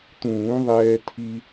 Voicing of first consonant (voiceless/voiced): voiceless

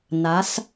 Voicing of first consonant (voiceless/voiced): voiced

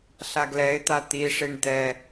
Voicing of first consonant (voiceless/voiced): voiceless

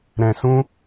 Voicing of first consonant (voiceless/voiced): voiced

